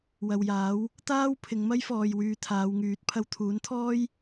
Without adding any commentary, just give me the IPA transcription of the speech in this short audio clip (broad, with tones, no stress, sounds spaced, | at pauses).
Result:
w ɐ˨ w j aː˨˥ w | t̪ aː˥ w pʰ ɪ˨˧ ŋ m ɐ˥ j f ɔː˨ j w yː˧ t̪ʰ aː˨˧ w ŋ yː˨˥ t̚ pʰ ɐ˧ w t̪ʰ uː˨˥ n t̪ʰ ɔː˥ j